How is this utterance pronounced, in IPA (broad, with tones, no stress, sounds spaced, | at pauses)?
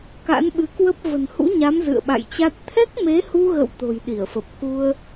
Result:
k a̰˧˥ n ɓ ɨ˨˦ k w ə˦˥ p̚ v ə̤˨˩ n h ṵ˧˥ ɲ a˨˦ m z ɨ̰˧˨ ə̯ ɓ a̰˧˨ j t͡ɕ a˦˥ t̚ t̪ʰ ɛ˦˥ k̚ m e˨˦ h u˧ ɣ ə̰˧˨ w t̪ o̤˨˩ j ɗ i˧˩ ə̯ f ə˨˩ p̚ k u˧ ə̯